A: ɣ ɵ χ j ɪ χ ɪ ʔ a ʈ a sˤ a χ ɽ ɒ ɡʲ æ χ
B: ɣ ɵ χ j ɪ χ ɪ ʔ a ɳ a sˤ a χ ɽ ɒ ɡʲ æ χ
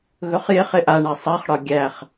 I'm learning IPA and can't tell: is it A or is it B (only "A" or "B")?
B